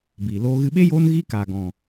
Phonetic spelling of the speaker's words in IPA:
b iː˨ l oː˦ ɣ ɨ˧ ɓ e˦ j oː˦ n ɣ i˦ k aː˨ ɡ ɔ̃˨

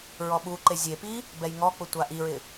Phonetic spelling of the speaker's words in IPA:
ɹ ɔ ɓ u ǃ e zʲ e p i | b ɛ j ŋ ɔ k͡p ʊ tʷ a ʔ i ɹ ɪ

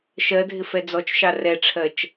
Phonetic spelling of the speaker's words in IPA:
ʃ ɜ dʱ ɪ f ɛ d͡z ɔ t͡ʃ ʃ ɑ r ɛ ʈ͡ʂʰ ɜ t͡ʃ

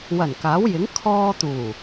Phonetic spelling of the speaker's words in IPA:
w ɐ˨˩ n k aː˨˥ w j ɪ˨˥ ŋ kʰ ɔː˧ t̪ uː˨˩

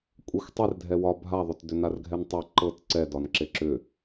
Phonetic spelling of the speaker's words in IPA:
kʷʼ e xʷ tˤ e r dʱ ɛ w ɒ bʱ a ðˤ ʏ t d ʏ n a r ɡʱ ɛ n tˤ e ǃ ɤ t ǀ ɛ d ɒ n ǁ e ǁ ʏ

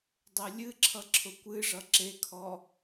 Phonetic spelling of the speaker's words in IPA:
dˤ e lʲ ɨ ǁʰ ʌ ǁʰ ʊ kʷ ɨ ʐ ʌ ǁ e kʰ ɔ

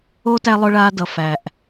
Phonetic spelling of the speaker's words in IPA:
o˦ t æ˧ lˠ ʊ˦ ɭ aː˦ d ʌ˨ f æ˨ ʔ

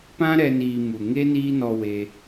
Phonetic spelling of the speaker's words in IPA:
p ã˦ ɾ ɛ˧ n iː˧ m u˨ ŋ e˦ n iː˦ n ɔ˧ w e˧

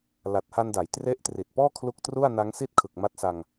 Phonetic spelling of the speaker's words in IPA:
l a˨˩ t̚ h a˧ n d a˩˦ j t r e˦˥ ʔ t r i˨˩ t̚ p ɔː˥˩ kʰ l u˦˥ k̚ t r u˥˩ a̯ n a˦˥ ŋ s i˥˩ t̚ kʰ ɯ˨˩ k̚ m a˦˥ t̚ s a˧ ŋ

